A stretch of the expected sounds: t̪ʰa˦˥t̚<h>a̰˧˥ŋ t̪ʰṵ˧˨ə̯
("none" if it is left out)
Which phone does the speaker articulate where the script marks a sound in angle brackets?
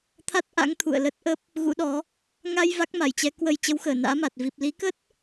ʔ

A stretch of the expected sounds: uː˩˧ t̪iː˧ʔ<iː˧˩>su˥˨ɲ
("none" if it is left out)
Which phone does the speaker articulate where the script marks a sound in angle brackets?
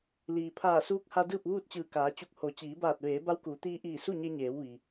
iː˧˩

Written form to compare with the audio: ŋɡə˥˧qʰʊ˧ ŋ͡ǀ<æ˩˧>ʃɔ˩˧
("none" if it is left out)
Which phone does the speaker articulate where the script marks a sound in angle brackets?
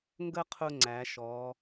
æ˩˧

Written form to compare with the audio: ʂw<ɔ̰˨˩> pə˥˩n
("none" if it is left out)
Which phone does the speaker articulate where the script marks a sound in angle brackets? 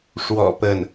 ɔ̰˨˩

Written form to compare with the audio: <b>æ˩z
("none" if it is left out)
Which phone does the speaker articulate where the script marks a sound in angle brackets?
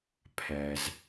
pʰ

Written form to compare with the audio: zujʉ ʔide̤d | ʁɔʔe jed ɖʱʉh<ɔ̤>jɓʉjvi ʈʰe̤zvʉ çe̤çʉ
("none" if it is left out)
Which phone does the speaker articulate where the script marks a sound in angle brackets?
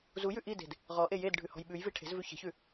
ɔ̤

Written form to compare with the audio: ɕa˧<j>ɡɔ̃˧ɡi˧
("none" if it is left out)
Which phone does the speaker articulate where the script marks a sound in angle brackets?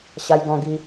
j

